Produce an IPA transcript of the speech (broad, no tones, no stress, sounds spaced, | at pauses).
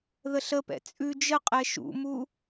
ð ə ɬ ə p ɛ̰ t͡sʼ ʉ d͡ʒ ə qʼ ɛ ʃ ṵ m u